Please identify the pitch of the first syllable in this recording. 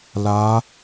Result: rising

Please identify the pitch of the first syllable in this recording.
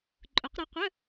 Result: rising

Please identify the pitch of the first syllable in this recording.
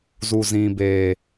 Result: low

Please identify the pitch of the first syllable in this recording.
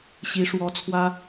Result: rising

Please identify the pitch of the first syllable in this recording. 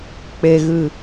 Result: low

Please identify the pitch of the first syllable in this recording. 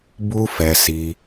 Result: high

